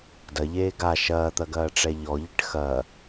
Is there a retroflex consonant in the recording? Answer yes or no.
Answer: yes